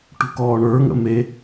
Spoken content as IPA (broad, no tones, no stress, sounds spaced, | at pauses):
ʈ ṳ k ɔː ɳ ə˞ ŋ ə̰ m e